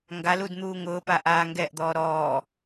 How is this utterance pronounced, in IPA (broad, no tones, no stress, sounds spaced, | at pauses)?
ŋ ɡ a l u d n̪ uː ŋ ʊː p a ʔ aː ŋ ɡ ɛ ʔ d̪ ɔː ɾ ɔː